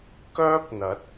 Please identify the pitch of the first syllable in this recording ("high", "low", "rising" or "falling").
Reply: high